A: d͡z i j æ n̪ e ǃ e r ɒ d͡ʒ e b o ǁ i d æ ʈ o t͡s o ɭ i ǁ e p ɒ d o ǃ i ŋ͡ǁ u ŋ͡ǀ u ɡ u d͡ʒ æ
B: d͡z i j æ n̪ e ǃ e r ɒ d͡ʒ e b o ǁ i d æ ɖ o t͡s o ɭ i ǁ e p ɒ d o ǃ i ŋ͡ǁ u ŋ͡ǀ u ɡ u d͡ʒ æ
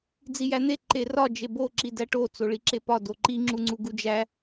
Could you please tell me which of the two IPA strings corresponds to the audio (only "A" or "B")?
A